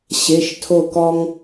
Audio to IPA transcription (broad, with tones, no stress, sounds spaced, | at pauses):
ɕ e˩˧˩ ʃ tʰ o˧˩ k ɔ˧ ŋ